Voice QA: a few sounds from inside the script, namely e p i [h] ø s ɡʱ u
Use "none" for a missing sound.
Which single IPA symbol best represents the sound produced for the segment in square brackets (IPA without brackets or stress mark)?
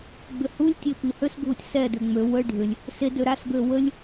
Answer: h